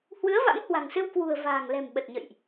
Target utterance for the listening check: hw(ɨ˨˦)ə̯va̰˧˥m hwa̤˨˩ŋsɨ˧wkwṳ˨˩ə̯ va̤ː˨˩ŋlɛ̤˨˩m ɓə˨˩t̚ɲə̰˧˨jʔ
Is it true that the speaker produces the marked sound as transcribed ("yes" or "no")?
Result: yes